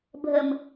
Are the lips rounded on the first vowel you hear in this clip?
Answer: no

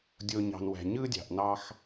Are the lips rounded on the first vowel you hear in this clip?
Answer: yes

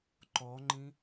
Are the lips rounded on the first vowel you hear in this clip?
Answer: yes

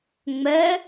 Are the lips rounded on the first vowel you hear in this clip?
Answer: no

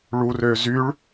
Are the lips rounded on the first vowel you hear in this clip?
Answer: yes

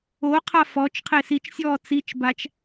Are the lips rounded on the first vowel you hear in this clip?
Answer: yes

